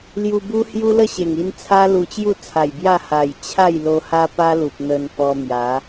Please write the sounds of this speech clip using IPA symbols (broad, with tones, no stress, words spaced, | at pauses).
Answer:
lju˧bu˦ hju˦lə˥˧ɕe˨˩ŋi˧n t͡sʰa˦ lu˧t͡ɕju˥˧ t͡sʰa˨˩jbja˥˧ ha˨˩j t͡ɕʰa˥˧j lo˧ha˦pa˦lu˨p̚ n̪ə˧npɔ˧ mja˨˦